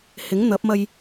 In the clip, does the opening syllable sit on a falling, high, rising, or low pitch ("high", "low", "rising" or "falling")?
rising